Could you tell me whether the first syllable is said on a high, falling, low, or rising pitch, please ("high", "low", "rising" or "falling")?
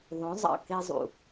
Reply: rising